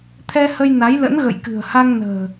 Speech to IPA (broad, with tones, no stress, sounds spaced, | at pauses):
t̪ʰ ɛ˧ h ə˧ j n a˨˦ j l ə̰˧˥ n ɣ ə̰˧˨ j k ɨ̤˨˩ ə̯ h a˧ ŋ n ə̤ː˨˩